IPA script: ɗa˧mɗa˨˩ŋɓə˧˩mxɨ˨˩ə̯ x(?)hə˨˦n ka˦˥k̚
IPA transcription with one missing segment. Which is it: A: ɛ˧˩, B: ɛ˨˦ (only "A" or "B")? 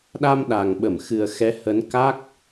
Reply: B